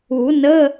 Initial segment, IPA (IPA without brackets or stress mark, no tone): u